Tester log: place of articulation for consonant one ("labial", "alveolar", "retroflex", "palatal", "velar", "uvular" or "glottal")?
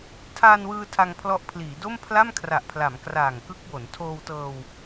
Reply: alveolar